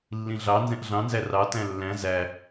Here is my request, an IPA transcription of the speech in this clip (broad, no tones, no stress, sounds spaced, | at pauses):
lː ĩ ɮ ɑ n z ɛ̃ ʔ ɮ ɑ̃ n z æ r ɑ t æ̃ lː æ̃ z æ